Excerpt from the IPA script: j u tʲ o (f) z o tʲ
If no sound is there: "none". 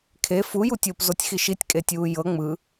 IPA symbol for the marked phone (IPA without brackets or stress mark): p